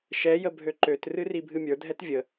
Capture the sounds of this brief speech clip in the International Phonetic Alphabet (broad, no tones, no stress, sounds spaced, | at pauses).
ʃ ɛ j ə bʱ ø ǃ ø t r ɨ r i bʱ ɨ mʲ ə˞ dʱ ɛ t vʲ ə